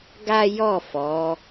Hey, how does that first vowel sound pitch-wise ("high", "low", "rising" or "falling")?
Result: high